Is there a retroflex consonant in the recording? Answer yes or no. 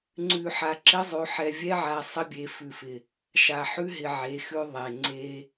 no